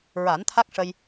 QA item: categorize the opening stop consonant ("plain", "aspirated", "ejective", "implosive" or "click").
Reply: aspirated